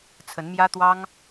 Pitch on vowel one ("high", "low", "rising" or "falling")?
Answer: rising